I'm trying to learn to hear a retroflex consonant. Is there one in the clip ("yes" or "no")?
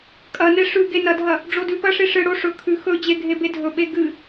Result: yes